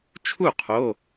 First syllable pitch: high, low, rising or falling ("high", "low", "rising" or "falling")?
falling